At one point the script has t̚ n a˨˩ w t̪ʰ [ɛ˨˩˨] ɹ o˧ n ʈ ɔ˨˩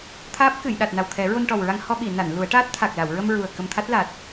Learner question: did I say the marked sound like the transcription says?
no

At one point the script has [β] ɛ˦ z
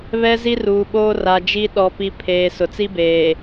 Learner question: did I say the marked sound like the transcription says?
yes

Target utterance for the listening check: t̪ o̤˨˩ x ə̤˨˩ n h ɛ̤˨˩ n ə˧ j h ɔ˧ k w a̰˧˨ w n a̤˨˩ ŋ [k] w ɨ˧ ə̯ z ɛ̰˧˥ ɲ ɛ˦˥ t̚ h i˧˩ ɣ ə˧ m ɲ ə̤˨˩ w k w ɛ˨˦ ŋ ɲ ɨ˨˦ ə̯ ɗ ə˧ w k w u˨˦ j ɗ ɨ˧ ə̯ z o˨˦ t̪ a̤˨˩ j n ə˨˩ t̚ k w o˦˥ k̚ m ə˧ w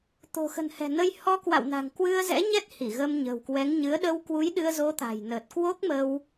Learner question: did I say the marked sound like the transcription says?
yes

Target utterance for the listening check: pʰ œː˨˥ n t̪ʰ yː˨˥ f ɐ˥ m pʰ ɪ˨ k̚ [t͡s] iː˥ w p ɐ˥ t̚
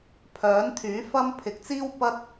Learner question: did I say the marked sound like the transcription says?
yes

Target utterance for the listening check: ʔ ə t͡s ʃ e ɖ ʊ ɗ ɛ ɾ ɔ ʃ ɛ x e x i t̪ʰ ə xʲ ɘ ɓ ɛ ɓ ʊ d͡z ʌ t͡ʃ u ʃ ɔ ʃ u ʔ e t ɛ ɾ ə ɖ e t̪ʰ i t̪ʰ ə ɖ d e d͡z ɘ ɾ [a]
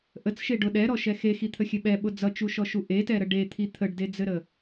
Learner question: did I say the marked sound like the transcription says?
no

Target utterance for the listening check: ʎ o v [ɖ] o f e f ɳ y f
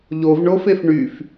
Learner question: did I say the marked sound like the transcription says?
no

